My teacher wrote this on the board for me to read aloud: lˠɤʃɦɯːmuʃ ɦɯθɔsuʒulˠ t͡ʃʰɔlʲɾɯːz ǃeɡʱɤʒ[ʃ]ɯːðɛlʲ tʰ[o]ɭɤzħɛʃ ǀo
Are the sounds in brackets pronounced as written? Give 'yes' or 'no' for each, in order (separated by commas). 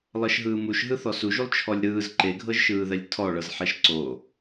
yes, no